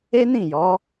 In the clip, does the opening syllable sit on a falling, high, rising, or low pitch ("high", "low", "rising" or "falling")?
high